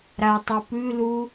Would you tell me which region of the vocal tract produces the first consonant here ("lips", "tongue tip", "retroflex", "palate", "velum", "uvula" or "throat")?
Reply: tongue tip